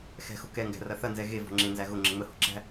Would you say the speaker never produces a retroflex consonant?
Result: yes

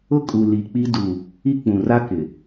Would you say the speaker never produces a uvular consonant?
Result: yes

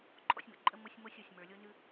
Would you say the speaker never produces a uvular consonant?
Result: yes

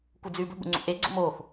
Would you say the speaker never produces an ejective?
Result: yes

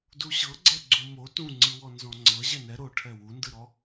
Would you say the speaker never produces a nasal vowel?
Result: no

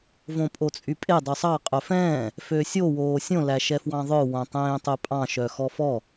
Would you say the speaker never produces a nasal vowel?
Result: no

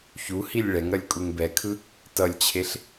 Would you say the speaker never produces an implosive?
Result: yes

